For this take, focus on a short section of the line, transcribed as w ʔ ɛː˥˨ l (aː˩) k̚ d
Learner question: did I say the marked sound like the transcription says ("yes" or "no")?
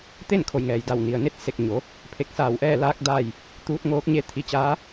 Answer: no